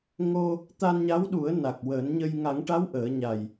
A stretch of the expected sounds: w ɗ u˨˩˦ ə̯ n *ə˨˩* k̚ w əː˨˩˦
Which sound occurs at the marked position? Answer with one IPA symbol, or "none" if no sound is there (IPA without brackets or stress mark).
a˨˩